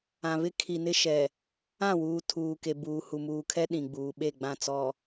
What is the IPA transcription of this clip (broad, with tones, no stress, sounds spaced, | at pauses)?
ã˨ β ɪ˦ kʰ i˨ n ɪ˦ ʃ ɛ˨ | ã˦˨ w uː˨ tʰ uː˨ k e˨ b uː˨ h u˨ m uː˨ kʰ ɛ˦ ɗ ĩ˨ ɡ͡b uː˨ ɓ e˦˨ ɡ͡b ã˦˨ t͡s ɔ˨